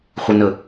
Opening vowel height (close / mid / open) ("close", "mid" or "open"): mid